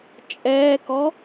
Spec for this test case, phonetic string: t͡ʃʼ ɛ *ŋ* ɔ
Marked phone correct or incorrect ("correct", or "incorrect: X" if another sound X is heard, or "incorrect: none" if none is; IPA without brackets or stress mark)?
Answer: incorrect: k